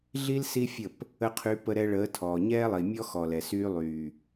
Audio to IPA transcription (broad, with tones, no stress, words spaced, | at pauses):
ɮi˦l si˦fʲə˦˨p | ə˧qʰy˨˦ pə˧ ɾɛ˧ɭəː˨˦tʰɔː˨ ɲɛː˦lˠi˨mʲɔ˦ xɔ˨lɛ˨ syː˧lˠyː˨